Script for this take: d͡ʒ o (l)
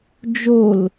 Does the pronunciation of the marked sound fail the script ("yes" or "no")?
no